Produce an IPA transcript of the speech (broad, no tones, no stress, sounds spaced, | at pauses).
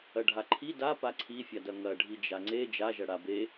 ɐ ɖʱ a ǃʰ i d a p a ǀʰ i fʲ a d ɐ ŋ ɐ ɖʱ i d͡ʒ a ŋ͡ǀ e d͡ʒ a ʒ ɐ ɽ a b e